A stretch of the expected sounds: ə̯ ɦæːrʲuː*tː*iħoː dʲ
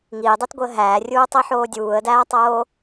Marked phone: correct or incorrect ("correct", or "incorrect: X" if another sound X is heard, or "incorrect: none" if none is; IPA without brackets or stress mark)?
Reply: incorrect: tˤ